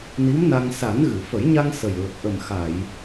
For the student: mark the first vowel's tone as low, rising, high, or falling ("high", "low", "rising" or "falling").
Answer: rising